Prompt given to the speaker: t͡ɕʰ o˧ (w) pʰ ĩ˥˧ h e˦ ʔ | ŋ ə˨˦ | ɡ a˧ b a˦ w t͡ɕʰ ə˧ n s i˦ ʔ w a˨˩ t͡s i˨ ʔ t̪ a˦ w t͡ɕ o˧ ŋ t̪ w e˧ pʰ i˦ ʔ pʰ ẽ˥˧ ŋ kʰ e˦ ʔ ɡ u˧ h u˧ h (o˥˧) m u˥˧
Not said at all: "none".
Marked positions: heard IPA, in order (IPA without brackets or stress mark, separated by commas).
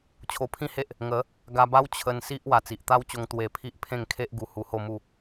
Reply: none, o˥˧